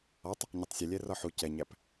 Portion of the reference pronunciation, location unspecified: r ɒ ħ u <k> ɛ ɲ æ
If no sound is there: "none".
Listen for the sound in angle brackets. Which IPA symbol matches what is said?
c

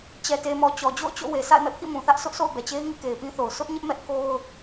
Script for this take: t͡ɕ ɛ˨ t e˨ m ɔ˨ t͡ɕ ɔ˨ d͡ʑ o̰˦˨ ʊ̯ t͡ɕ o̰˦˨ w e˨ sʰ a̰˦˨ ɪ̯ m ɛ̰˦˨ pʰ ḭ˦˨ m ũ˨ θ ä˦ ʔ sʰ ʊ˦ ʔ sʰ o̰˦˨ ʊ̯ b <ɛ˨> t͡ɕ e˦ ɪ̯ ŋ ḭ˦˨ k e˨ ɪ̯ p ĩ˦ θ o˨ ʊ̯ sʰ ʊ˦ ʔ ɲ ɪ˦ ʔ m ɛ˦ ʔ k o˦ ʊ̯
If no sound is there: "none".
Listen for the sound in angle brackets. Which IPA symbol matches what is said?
ɛ˨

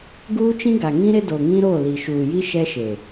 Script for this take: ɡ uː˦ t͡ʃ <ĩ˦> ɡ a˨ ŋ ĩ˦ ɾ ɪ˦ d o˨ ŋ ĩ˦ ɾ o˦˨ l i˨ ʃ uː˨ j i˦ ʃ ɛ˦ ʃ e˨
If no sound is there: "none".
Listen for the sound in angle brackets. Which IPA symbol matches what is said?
ĩ˦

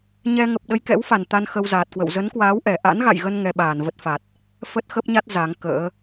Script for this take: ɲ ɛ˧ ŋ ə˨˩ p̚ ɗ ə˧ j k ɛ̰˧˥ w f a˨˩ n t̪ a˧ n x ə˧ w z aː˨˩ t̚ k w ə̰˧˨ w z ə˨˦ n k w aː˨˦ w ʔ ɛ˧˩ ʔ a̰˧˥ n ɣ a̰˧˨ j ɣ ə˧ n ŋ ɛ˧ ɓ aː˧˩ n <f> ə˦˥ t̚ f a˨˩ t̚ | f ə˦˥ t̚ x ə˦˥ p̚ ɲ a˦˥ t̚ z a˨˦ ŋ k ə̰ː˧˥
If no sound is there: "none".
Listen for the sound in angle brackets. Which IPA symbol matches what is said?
v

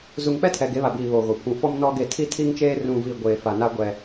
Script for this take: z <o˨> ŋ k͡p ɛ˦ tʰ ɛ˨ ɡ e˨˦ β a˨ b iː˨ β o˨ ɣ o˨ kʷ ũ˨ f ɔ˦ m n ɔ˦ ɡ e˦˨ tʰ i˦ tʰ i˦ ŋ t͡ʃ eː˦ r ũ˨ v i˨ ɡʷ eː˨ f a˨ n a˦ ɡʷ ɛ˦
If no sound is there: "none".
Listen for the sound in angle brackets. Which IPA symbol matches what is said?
u˨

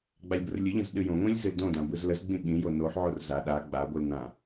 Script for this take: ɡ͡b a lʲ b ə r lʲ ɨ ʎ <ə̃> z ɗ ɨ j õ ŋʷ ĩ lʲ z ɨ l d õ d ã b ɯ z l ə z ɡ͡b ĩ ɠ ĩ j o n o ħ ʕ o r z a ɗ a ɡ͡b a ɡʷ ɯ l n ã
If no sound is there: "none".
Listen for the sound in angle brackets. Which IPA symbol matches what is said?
ə̃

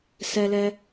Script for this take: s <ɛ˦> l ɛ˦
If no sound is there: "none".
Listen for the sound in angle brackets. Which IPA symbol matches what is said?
ɛ˦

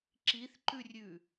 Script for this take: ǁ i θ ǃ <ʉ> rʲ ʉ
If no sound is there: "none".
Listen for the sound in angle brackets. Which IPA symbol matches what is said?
ʉ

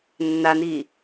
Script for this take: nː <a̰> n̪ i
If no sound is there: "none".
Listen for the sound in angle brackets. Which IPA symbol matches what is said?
a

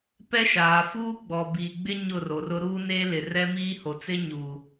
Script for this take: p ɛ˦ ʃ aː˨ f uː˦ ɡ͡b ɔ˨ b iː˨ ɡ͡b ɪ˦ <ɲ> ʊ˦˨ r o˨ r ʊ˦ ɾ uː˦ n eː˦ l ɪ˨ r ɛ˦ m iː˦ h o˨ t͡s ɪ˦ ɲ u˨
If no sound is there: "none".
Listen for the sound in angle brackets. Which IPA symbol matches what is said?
ɲ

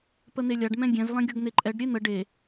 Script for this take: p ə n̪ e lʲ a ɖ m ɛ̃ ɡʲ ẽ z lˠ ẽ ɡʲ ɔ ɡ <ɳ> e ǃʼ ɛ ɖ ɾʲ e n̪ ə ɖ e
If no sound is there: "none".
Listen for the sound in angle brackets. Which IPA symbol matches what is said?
n̪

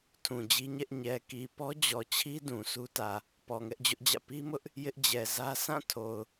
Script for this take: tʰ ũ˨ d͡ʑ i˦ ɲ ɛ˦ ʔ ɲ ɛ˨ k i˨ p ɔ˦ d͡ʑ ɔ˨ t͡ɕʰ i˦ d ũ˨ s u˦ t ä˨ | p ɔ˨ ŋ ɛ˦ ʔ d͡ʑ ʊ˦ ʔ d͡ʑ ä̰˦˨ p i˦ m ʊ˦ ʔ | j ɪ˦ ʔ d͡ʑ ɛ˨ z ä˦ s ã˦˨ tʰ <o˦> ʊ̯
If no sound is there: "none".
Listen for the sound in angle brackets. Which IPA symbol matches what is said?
o˨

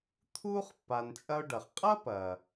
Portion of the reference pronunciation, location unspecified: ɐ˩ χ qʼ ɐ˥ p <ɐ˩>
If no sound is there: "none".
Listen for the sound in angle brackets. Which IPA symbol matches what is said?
ɐ˩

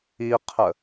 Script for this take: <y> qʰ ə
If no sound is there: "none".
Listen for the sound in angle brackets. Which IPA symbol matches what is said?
i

